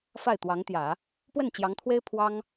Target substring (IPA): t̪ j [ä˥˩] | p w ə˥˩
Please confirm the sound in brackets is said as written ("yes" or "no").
no